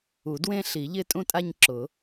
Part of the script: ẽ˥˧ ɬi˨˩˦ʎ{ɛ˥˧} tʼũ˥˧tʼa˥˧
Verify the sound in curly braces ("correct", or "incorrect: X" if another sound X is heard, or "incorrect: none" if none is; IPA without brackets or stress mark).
incorrect: ɪ˥˧